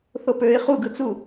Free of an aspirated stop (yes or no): yes